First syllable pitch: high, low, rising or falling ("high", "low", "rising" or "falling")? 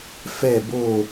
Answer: falling